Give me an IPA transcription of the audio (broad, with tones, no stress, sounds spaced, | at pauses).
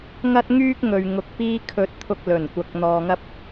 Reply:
ŋ ɐ˥ t̚ ŋ yː˥ k̚ ŋ ɵ˨ ɥ ŋ ʊ˧ k̚ p iː˥ kʰ ɵ˧ t̚ t̪ʰ ʊ˧ k̚ l ɵ˨˩ n kʷ ɐ˨˥ k̚ n̪ ɔː˨ ŋ ɐ˥ p̚